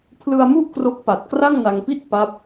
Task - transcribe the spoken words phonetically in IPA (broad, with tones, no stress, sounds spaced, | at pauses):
pʰ l ɯ˧ a̯ m u˥˩ ʔ k r o˦˥ k̚ p a˨˩ t̚ k r a˥˩ ŋ n a˧ ŋ p i˥˩ t̚ p a˦˥ p̚